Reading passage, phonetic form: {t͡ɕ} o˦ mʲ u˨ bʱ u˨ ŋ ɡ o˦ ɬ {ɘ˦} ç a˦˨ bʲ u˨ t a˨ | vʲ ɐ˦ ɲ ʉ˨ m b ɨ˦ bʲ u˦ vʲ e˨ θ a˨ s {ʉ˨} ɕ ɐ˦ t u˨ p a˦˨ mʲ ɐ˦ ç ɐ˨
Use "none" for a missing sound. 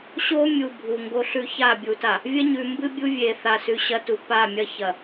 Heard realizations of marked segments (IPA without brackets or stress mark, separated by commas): ɕ, ʉ˦, ʉ˨